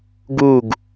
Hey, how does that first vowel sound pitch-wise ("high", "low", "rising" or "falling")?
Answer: falling